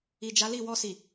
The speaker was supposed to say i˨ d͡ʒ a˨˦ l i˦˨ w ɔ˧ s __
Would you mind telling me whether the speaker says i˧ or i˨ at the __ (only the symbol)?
i˨